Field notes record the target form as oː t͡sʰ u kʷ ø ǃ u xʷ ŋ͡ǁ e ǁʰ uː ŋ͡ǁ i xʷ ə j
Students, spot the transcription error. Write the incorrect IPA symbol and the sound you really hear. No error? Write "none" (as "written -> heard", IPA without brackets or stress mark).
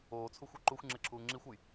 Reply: kʷ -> xʷ